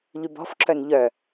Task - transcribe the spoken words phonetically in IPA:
ʎ y b ɔ̤ f ǁ œ n ʎ œ

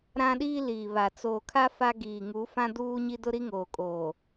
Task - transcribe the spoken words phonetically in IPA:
ɾ ã˦ ɗ iː˦ l iː˨ β a˨ t͡s oː˨ kʰ a˦ f a˦ ɡ iː˨ ŋ u˨˦ f ã˦ d uː˦ ɲ i˦ d ʊ˦ ɾ i˦ ŋ oː˨ kʼ oː˨

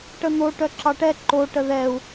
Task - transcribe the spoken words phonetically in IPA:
ʈ ə n̪ o ʈ œ ǁ ɑ ʈ ɛ ǃ o ʈ ə ð ɛ u̯

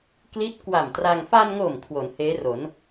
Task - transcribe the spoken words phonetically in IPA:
k l i˦˥ t̚ k w a˨˩ m t r a˧ ŋ f a˧ n ŋ o˨˩ m kʰ w o˩˦ n h eː˦˥ r o˩˦ n

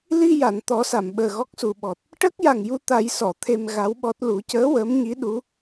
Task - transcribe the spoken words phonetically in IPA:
l i˧ j a˨˩˨ n t̪ ɔ˨˩˦ s a˨˩˨ m ɓ əː˨˩ ɣ ɔ˦˥ k̚ s u˨˩ ɓ ɔ˨˩ t̚ | ʈ əː˦˥ k̚ j a˨˩ ŋ j u˧ t̪ a˨˩˦ j s ɔ˨˩˨ t̪ʰ e˧ m ɣ a˧˥ w ɓ ɔ˦˥ t̚ l u˨˩˦ c əː˧˥ w əː˧˥ m ɲ i˧˥ ɗ u˧˥

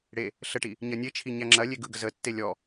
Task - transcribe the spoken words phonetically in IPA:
ɽ e | ɬ ə ʈ i | ɲ ɐ nʲ e t͡ʃʰ i ɲ æ ŋ͡ǁ ɐ lʲ e ɡ ɯ ɡ ə z ə tː e lʲ ɔ

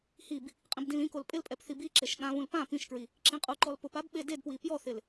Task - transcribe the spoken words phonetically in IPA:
h i b | qʼ ĩ b d ĩ l ĩ k o l pʼ ɪ l pʼ ɛ p θ i b i ǁ e ʃ ɠ ã β ũ l p ã p ĩ ʃ k ɹ i | ǁ ĩ qʼ u ǃ ɔ l p ʊ p a b ɓ e d e d p w i p j ɔ θ ɪ l

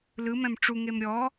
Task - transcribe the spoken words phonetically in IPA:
l ɯ m ɛ̃ m ʈ͡ʂ u ŋ e m ɾʲ ɔ

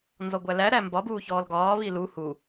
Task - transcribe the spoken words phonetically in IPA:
n z ɔ ɡʷ æ l æ ɾ æ m b ɒ b uː ç ɔː l ɡ ɒː β i l u h u

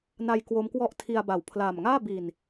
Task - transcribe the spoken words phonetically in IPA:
n a˧ j k w o˦˥ m k w ɔ˥˩ ʔ tʰ i˧ a̯ b a˩˦ w pʰ l aː˨˩ m ŋ aː˥˩ b i˨˩ n

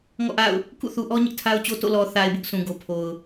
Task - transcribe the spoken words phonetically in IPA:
ŋ ɔ̰˦˨ ʔ a̰˦˨ ʊ̯ | k ṵ˦˨ θ u˨ ʔ ɔ˦ ɲ ɪ˦ ʔ tʰ a˦ ʊ̯ t͡ɕ o˦ t o̰˦˨ l ɔ˨ θ a˨ ɪ̯ b ʊ˦ ʔ sʰ ũ˨ ɡ o˨ pʰ o˨ ʊ̯

